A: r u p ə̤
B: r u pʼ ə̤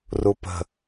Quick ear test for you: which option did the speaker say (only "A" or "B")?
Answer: A